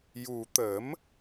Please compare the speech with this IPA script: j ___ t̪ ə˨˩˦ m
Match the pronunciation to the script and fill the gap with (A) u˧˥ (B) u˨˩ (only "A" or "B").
B